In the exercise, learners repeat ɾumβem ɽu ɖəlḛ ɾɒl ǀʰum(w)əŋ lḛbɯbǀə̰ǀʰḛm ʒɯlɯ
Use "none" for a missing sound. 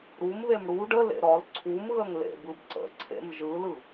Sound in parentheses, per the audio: ɣ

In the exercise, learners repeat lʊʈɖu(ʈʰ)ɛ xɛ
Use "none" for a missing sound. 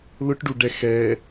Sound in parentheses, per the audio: ɖ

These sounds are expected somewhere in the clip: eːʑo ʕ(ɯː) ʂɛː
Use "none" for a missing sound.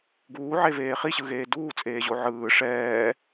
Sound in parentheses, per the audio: ɯː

